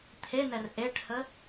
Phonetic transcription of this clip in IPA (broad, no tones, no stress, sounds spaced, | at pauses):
t̪ʰ e n ɛ r ʔ e ʈ h ə